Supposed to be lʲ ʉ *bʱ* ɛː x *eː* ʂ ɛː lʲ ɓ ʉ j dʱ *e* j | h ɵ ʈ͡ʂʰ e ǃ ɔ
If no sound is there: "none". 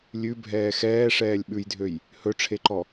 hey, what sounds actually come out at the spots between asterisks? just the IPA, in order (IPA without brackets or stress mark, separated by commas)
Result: bʱ, ɛː, ø